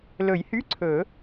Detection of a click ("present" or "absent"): present